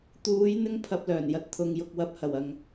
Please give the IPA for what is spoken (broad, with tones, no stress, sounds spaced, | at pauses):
t̪ uː˨˧ j n̪ ɪ˥ ŋ pʰ ɐ˧ p̚ l œː˨˩ n j ɐ˧ t̚ t̪ʰ ʊ˧ ŋ j ʊ˨ k̚ w ɐ˨ p̚ h ɐ˨˩ w ɐ˨ ŋ